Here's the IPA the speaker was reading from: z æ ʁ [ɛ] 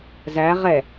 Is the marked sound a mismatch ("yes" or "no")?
no